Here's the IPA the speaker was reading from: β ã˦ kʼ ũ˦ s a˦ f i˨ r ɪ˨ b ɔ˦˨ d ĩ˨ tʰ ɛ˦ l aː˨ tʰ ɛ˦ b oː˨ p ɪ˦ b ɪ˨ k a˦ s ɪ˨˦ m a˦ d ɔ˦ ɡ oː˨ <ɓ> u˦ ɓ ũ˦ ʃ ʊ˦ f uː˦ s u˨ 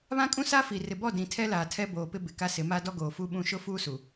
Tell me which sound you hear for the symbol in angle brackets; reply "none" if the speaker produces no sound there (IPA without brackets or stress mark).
f